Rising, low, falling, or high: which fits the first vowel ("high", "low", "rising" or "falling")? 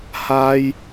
high